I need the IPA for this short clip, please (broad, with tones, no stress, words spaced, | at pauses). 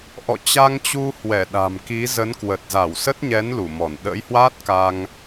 ʔɔ̰˧˨t͡ɕa˧ŋt͡ɕu˧ hwɛ˧˩ɗa̤˨˩mki˨˦zə˨˦n kwə˨˩t̚za˧˩wsə˦˥t̚ɲɛ˨˦n lu˧˩mɔ˧˩n ɗə̰˧˥jhwaː˦˥t̚ ka˧ŋ